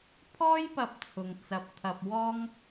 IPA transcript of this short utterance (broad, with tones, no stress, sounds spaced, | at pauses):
pʰ ɔː˥ j p ɐ˧ p̚ t͡sʰ ʊ˨ ŋ t͡s ɐ˧ p̚ t̪ʰ ɐ˧ p̚ w ɔː˥ ŋ